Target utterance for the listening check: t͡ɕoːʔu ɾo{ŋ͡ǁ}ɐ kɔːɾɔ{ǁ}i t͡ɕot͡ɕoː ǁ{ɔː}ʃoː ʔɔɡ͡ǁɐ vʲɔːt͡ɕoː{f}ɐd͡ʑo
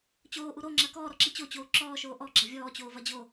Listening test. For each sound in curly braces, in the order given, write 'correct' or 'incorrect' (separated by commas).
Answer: correct, correct, correct, incorrect